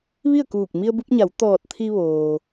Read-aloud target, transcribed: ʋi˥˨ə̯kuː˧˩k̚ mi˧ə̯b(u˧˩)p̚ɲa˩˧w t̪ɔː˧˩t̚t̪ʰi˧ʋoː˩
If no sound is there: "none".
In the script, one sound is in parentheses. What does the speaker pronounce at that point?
u˧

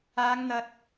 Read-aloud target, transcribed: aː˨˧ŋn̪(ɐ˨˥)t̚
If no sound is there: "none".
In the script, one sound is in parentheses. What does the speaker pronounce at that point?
ɐ˨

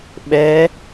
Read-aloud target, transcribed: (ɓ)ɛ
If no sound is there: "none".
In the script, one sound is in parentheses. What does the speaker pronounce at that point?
ɓ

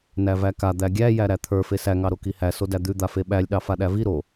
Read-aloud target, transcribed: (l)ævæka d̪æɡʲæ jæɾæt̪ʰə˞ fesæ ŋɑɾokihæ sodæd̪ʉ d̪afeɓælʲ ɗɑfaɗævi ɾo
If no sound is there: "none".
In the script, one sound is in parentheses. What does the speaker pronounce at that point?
n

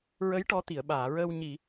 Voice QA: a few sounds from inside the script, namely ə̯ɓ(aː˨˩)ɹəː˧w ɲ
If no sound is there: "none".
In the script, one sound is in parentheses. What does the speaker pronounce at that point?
aː˨˩˨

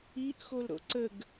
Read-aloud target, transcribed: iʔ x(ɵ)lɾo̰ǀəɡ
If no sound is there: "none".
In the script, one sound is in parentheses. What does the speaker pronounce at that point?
o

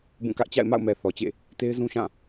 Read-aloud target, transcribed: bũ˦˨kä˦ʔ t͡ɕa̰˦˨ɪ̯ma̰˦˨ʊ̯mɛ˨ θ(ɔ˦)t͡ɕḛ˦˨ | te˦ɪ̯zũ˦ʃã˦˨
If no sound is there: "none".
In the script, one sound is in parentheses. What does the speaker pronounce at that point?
ɔ˨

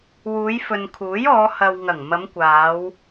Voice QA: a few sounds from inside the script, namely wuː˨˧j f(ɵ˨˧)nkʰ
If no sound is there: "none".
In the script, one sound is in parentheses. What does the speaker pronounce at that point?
ɵ˨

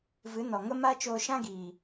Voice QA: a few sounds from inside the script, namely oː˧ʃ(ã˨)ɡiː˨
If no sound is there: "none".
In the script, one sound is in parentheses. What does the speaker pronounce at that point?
ã˦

